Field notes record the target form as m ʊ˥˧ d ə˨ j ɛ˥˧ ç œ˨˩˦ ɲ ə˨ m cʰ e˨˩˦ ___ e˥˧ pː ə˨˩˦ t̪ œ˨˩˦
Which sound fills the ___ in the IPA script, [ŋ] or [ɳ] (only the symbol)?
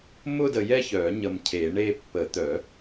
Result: ɳ